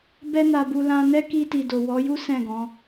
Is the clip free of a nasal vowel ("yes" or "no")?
no